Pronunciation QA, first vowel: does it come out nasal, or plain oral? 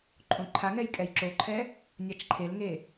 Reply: nasal